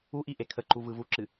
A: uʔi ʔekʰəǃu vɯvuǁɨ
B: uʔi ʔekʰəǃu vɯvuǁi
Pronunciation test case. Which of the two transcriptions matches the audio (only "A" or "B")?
A